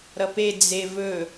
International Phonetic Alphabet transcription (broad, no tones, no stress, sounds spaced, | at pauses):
ɾ ʌ p e d͡z e v ɵ